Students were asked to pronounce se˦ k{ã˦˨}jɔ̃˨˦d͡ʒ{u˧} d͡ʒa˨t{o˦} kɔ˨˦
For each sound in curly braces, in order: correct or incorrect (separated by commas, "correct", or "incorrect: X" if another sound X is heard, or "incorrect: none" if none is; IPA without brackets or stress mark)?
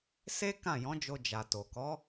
correct, incorrect: o˧, incorrect: o˨